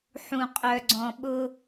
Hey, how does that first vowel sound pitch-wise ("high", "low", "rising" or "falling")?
low